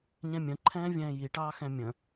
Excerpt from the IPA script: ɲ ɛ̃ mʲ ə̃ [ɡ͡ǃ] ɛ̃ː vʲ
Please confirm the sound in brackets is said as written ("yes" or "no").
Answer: no